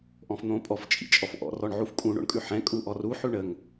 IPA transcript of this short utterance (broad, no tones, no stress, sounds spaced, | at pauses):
ʔ ɔ̃ f n̪ õ pʼ ɔ f t͡ʃʼ ḭ t͡ʃʼ ɔ f ʔ ɔ̰ r ɔ ɳ ʕ u f kʼ ũ ɳ o̰ ɳ kʼ ʉ ħ ɛ̃ kʼ u ʔ ɔ r u ħ ʉ ɳ ə ŋ